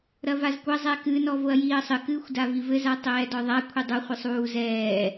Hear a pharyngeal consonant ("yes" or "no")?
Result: no